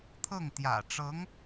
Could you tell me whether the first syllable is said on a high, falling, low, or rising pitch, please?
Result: falling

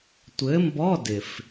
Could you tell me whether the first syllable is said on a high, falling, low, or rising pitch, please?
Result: rising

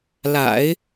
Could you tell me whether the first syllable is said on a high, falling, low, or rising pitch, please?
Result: low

